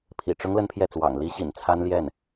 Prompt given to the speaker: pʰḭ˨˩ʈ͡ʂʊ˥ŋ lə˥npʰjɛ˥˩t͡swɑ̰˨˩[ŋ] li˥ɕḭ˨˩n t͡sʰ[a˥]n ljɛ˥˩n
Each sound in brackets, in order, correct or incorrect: correct, correct

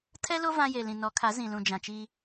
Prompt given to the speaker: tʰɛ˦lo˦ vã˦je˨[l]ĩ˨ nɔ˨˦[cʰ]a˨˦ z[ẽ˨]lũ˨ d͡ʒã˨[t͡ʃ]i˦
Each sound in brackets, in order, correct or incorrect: correct, incorrect: kʰ, incorrect: ĩ˨, correct

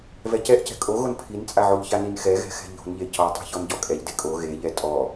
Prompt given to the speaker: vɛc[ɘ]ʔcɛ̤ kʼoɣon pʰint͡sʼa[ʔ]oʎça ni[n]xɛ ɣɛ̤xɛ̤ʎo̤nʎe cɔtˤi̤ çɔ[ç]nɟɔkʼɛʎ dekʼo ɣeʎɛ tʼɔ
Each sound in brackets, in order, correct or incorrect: incorrect: ɛ, incorrect: ʕ, correct, incorrect: none

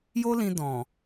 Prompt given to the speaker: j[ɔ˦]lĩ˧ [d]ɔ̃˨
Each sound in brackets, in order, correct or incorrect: incorrect: o˦, correct

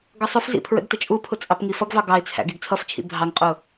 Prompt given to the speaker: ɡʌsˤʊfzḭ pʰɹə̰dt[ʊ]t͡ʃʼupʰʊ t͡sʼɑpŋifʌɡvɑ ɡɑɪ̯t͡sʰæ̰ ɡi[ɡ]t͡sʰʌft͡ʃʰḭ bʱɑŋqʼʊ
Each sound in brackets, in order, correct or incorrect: incorrect: ə, correct

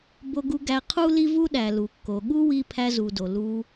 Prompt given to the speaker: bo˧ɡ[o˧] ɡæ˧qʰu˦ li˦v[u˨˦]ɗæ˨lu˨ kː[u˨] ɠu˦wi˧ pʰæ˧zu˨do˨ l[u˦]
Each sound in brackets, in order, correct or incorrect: incorrect: u˧, incorrect: u˦, incorrect: o˨, incorrect: u˧

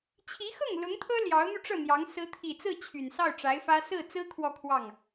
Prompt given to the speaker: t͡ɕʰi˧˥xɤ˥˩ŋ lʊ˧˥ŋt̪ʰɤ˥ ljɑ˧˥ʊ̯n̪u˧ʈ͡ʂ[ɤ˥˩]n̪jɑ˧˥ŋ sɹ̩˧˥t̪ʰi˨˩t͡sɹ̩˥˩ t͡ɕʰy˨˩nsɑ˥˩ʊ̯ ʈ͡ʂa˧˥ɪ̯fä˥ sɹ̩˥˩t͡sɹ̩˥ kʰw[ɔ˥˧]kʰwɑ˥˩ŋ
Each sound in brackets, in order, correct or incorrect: correct, correct

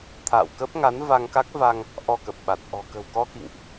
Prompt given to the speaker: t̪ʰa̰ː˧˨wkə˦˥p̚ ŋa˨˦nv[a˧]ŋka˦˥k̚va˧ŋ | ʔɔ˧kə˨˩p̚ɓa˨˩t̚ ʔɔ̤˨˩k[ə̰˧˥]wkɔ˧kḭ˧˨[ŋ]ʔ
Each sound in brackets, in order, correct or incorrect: correct, incorrect: ə̤˨˩, correct

